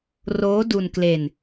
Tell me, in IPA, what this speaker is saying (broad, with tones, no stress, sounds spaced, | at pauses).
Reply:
r oː˦˥ d u˧ n k l e˧ n